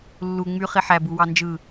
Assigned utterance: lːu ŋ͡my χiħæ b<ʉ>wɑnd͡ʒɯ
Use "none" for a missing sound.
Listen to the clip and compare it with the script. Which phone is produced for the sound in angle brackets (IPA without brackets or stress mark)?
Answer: u